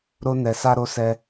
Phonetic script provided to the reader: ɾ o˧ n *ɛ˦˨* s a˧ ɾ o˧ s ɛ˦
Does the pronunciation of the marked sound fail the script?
yes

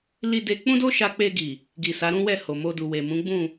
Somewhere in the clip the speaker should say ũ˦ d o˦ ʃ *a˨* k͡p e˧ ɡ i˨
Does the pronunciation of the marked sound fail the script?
yes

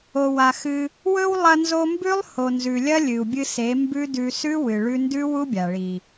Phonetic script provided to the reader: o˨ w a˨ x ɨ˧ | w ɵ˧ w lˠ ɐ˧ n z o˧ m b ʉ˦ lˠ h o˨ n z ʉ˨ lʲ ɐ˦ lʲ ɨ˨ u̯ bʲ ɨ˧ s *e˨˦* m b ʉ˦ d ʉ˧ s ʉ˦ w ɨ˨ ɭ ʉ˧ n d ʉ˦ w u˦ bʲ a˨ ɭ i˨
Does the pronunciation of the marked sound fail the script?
no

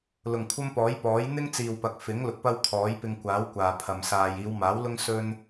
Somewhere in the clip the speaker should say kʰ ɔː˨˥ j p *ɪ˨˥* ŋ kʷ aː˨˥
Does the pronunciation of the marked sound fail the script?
yes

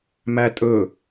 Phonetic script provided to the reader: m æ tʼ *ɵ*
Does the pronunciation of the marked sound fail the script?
no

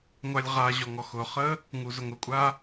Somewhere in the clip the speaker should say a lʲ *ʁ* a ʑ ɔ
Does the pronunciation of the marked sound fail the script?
no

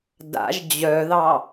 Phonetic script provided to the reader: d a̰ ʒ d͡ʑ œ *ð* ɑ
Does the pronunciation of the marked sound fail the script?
no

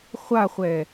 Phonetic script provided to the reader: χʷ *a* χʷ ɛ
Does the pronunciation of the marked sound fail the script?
no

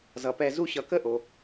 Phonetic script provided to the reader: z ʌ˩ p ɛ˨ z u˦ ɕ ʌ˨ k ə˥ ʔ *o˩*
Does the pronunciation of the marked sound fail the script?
no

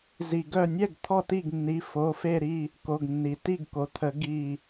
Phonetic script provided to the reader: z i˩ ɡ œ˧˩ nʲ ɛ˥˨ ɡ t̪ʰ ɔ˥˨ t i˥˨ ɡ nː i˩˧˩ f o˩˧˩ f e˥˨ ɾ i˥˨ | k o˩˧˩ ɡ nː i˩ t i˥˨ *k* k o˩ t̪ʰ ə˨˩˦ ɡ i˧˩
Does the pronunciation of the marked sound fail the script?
yes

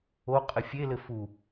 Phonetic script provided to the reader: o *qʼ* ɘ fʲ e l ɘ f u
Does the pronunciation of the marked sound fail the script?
no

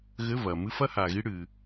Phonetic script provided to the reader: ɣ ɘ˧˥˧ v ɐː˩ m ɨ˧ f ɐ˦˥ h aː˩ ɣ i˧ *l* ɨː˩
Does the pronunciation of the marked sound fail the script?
yes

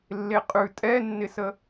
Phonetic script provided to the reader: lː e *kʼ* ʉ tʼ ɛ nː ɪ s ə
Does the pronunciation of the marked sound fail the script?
yes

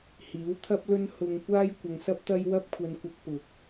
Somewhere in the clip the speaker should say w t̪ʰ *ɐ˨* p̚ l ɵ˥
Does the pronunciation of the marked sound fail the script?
yes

